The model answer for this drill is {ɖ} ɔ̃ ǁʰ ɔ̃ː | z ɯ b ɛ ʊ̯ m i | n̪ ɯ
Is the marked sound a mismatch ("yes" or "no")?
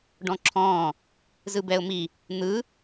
no